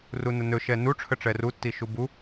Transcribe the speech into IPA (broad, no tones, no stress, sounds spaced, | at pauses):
r u n ə n ɵ ʃ ɛ n u ʈ͡ʂʰ ə ʈ͡ʂ ɛ r u tː i ʃ u b u